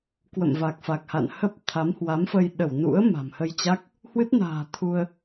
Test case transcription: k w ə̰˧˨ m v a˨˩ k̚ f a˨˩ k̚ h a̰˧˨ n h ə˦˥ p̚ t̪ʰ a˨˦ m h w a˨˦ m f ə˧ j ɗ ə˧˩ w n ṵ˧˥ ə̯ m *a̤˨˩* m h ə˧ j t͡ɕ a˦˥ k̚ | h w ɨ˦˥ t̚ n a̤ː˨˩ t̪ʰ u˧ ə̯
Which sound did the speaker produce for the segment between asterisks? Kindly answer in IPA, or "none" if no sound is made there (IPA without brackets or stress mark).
a̤˨˩